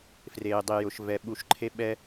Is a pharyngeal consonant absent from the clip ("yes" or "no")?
yes